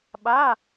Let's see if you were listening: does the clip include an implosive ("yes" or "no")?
yes